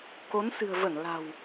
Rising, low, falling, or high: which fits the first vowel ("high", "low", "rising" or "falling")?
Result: rising